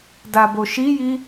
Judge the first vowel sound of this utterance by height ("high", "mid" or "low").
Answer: low